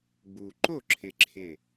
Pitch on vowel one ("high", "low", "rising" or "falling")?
low